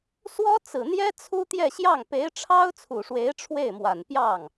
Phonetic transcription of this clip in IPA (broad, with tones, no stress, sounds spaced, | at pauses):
s w ɔ˥ t͡s ɹ̩˨˩ n̪ j ɛ˥ t͡sʰ u˥ t̪ j ɛ˥˧ ɕ j ɑ˥˩ ŋ p e˧˥ ɪ̯ ʈ͡ʂʰ ɑ˥ ʊ̯ t͡sʰ u˨˩ ʂ w e˧˥ ɪ̯ ʈ͡ʂʰ w e˥˩ ɪ̯ m w a˨˩ n p j ɑ˥˩ ŋ